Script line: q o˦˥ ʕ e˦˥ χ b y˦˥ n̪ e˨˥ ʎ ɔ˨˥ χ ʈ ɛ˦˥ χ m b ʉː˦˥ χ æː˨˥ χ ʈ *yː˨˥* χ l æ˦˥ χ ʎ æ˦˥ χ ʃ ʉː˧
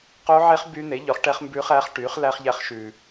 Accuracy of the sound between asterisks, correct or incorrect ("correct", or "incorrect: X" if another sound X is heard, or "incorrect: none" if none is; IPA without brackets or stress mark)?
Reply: correct